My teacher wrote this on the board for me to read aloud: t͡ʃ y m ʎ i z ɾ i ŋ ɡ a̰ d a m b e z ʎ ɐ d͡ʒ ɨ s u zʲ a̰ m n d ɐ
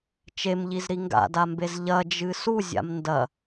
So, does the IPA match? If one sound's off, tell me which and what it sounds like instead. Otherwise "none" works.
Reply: y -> e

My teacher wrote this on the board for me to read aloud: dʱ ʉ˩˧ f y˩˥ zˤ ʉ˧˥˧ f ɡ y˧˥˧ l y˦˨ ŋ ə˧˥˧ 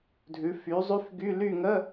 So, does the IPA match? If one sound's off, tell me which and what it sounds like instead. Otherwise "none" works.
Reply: none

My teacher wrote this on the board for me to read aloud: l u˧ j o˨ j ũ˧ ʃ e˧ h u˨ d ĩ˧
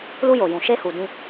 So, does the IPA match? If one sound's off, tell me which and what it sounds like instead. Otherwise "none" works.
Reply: ũ˧ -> ũ˨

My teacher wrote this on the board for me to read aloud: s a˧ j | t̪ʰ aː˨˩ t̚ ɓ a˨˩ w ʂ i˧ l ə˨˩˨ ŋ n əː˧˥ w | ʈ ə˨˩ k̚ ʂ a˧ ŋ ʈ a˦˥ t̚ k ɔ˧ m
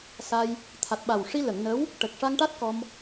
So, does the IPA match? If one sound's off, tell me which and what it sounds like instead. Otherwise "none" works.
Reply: aː˨˩ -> a˨˩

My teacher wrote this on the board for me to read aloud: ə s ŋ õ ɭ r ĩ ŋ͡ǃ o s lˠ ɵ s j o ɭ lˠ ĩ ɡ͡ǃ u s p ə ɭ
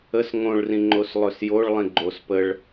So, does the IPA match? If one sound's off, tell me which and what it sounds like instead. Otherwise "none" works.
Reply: u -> o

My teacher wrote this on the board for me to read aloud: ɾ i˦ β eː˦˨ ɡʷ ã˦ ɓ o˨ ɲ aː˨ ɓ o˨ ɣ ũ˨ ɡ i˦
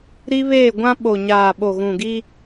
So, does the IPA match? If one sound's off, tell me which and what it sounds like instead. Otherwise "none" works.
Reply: none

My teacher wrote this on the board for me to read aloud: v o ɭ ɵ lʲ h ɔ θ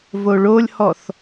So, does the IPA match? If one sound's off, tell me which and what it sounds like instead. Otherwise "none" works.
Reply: ɵ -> o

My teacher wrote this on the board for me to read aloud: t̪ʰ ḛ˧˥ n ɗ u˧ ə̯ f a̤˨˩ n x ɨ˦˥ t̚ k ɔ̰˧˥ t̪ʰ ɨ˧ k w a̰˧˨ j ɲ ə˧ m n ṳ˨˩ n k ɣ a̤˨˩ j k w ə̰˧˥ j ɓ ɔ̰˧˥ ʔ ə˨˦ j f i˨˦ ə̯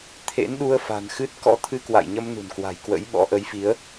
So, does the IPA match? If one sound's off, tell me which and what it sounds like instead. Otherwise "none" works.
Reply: ɣ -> w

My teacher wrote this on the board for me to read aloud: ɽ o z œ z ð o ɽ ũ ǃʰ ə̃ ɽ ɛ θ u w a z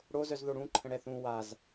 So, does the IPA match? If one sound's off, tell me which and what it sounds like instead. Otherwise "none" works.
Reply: u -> ũ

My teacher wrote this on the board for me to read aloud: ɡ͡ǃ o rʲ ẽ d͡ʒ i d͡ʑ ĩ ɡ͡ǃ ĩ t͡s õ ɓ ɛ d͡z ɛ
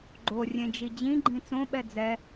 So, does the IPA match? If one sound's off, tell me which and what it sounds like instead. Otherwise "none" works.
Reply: none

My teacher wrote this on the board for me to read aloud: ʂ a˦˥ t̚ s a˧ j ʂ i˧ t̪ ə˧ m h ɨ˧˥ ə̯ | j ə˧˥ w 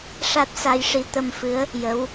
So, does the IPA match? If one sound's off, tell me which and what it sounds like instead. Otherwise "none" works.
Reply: h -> f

